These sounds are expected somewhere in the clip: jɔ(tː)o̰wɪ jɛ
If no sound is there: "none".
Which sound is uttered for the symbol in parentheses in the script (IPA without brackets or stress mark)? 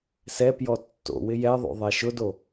tː